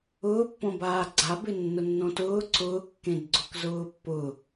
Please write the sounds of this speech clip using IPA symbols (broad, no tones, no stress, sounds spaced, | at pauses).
ʊː pː õ b aː ɡ͡ǀ a b ɪ nː ʊ nː õ t ʊː ǀ ʊː kː ẽ d ɡ͡ǀ ʊ k z ʊː pː ʊ